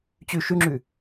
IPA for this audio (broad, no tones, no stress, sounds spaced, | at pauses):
t͡ɕ ʉ ʃ ʉ ŋ͡ǁ ʉ